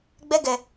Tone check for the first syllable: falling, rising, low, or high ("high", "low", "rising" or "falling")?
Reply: high